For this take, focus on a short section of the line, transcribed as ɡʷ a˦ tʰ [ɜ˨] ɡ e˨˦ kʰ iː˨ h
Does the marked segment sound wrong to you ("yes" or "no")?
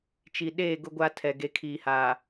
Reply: yes